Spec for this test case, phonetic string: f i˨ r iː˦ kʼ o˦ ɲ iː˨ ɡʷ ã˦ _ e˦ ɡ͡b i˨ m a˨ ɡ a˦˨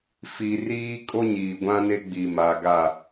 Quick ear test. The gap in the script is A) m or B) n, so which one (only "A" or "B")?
B